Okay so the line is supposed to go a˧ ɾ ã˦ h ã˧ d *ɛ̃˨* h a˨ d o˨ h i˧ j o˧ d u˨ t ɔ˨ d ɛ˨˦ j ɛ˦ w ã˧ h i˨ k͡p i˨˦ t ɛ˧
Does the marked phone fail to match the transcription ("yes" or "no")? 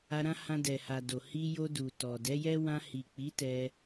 yes